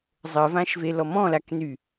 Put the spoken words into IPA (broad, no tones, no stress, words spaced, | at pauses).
zˤəvãʃvelɔ mɔ̃lakny